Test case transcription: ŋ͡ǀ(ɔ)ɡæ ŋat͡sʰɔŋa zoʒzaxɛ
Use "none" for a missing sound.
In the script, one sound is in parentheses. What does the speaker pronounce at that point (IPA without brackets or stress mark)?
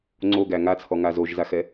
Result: o